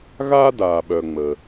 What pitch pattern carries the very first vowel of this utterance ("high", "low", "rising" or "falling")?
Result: high